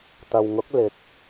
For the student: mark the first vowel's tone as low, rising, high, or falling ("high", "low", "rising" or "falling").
low